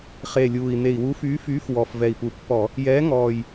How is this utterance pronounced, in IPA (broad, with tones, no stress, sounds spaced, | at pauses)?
χ e˨˩ lʲ uː˨˩ i̯ n̪ e˨˩ i̯ w uː˨˥ f yː˨˥ f yː˨˥ f w ɔ˨˩ f v ɛ˨˩ i̯ p u˨˩ pː ɔ˧˩˧ | j ɛː˨˥ ŋ ɔː˨˩ j